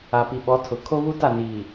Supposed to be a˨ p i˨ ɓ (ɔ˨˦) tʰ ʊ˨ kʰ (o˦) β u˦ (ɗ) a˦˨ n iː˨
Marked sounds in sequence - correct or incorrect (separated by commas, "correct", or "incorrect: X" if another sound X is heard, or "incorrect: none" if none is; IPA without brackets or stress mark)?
correct, correct, incorrect: t